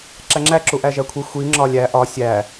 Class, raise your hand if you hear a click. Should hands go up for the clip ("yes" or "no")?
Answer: yes